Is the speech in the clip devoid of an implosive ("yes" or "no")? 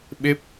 no